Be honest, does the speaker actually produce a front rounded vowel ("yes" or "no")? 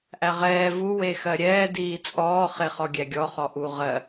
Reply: no